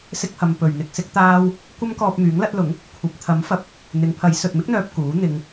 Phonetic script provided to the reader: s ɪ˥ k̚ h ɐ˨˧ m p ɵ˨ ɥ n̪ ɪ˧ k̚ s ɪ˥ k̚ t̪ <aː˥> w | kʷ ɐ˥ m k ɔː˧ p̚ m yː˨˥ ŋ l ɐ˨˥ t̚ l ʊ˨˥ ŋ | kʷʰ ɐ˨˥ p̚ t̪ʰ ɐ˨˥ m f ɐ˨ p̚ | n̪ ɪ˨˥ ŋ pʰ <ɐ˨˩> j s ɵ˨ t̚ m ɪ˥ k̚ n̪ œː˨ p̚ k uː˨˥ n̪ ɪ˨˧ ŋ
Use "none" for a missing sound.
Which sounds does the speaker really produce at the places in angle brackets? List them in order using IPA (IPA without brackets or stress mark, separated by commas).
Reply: aː˥, ɐ˨˥